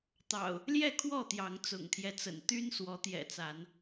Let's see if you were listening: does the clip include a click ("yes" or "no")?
no